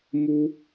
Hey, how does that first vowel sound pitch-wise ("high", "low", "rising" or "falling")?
high